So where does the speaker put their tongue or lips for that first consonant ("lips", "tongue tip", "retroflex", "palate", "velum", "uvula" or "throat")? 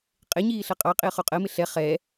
uvula